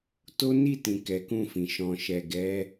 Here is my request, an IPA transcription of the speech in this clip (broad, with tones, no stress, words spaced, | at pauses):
to˦ni˦˨tĩ˨ kɛ˨˦kũ˦˨fĩ˨ ʃɔ̃˨ʃɛ˨ɡɛ˨˦